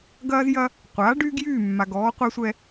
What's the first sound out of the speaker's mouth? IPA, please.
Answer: ɡ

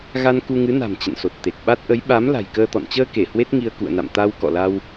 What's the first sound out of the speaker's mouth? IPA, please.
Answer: ɣ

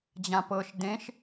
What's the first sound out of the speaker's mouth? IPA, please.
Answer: d͡ʑ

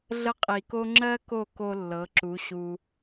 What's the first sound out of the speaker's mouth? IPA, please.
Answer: ɮ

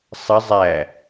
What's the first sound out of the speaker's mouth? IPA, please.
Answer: sˤ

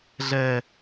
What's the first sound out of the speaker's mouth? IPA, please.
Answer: ɮ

